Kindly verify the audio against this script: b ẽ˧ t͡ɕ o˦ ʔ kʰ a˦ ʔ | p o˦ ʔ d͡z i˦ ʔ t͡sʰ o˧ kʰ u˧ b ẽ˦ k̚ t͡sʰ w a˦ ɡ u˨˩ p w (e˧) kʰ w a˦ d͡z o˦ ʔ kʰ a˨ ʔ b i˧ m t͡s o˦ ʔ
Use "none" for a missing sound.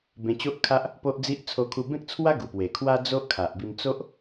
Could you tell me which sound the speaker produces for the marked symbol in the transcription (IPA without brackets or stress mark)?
e˨˩